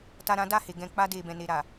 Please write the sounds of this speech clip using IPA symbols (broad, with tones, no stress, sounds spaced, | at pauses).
t a˧ ɾ ã˦ d a˦˨ h e˨ ɡ ɛ̃˨ k͡p a˧ d e˨ b ɛ̃˨ n e˨ ɾ a˨